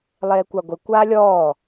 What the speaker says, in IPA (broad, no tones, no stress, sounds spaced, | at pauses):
lˠ eː kʷ a ɡʷ e kʷ aː lʲ ɔː